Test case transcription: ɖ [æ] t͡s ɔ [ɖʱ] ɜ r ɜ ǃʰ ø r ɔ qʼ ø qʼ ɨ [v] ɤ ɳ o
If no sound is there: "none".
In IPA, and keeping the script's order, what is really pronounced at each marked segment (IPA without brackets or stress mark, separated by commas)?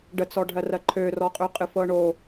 ə, ɖʱ, f